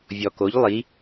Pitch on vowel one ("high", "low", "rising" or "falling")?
low